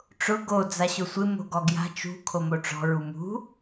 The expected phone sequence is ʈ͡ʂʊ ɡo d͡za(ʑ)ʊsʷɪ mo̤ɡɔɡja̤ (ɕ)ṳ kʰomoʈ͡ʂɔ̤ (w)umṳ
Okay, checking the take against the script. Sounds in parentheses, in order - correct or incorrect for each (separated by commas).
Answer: incorrect, incorrect, incorrect